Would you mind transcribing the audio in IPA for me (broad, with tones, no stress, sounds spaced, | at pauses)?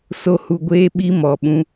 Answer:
s o˨ h u˨ ɡʷ eː˦ ɓ i˦ m ɔ˨ ɓ ũ˦